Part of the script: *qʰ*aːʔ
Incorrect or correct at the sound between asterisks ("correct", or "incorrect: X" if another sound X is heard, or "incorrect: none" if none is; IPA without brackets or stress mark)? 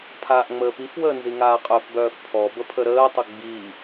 incorrect: pʰ